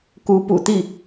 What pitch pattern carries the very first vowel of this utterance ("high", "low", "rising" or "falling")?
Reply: rising